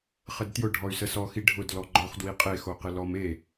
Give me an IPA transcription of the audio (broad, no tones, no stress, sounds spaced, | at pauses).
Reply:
χ ə d t j ʊ ɖʱ ɔ y̯ s ə s ɔ x i ɖʱ ʊ d l ɔ ɡ͡ǃ ɔ χ d w i qʼ e x o q ɪ l ɔ m e